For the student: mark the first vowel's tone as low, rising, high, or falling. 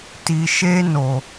low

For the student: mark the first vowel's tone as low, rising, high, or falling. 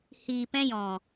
low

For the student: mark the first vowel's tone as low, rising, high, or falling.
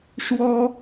high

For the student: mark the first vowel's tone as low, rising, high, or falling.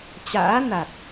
rising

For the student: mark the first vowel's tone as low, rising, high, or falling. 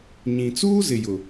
low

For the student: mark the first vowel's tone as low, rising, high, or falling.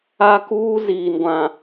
high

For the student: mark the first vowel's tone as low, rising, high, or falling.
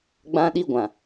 high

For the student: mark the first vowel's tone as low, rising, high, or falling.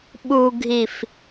low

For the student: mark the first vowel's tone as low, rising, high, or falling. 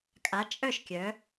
rising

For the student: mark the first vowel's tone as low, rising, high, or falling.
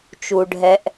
low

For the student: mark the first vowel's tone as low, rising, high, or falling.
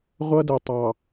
high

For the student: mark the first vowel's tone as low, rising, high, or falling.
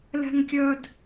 high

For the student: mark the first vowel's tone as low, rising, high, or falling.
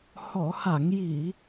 low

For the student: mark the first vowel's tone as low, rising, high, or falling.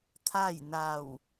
falling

